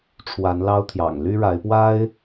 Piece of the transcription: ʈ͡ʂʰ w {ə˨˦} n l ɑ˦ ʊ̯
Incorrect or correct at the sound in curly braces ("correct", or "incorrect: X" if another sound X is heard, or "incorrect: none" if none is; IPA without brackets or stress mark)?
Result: incorrect: a˨˦